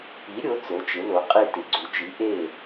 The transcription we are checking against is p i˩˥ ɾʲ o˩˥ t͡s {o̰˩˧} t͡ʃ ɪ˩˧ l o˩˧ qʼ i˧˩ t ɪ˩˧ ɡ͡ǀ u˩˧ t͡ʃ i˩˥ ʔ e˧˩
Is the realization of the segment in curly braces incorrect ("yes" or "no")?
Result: yes